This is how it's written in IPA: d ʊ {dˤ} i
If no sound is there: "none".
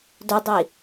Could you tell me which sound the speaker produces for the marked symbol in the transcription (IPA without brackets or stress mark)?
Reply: dˤ